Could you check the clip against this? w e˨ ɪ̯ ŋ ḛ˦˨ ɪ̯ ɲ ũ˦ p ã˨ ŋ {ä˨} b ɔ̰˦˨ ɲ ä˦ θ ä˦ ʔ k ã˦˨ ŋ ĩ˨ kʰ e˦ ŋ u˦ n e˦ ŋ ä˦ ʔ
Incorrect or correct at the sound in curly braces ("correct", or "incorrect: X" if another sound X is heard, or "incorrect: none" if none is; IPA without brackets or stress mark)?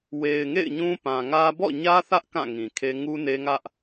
incorrect: ä˦